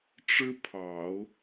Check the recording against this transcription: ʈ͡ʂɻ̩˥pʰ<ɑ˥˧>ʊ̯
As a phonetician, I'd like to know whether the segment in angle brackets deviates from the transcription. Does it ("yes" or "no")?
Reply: yes